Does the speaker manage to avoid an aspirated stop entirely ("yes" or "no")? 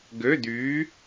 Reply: yes